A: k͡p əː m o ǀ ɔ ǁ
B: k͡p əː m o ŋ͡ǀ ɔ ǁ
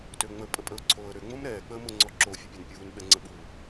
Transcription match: B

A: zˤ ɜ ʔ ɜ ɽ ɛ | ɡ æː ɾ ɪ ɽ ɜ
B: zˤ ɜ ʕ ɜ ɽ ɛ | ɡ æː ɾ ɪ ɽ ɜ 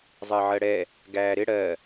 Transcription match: B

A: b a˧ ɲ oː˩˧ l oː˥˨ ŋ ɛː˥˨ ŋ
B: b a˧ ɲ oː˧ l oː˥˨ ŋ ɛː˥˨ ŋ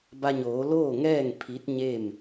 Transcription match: A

